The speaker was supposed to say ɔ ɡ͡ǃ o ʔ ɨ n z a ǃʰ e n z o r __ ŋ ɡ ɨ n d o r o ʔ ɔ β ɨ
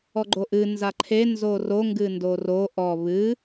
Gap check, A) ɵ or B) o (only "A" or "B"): B